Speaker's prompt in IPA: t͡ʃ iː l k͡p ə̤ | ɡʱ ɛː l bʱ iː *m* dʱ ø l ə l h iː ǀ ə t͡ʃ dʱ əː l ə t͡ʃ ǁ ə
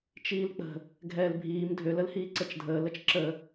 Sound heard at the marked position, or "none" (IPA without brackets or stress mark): m